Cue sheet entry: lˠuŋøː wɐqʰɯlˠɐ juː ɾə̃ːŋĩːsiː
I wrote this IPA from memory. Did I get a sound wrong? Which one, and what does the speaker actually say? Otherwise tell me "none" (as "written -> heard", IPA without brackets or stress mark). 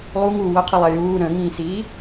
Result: øː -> uː